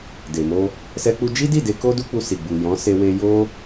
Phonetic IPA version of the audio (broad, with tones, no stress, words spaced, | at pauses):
de˨mo˧ | sɛ˦k͡pu˦ d͡ʒi˦di˦˨de˧ ko˦ du˦k͡pu˧si˨ɡ͡bu˨ jɔ̃˨˦ se˧we˧ jo˦